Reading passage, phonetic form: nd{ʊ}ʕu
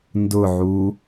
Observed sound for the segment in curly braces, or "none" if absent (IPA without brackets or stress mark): ʊ